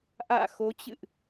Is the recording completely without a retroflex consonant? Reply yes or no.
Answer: yes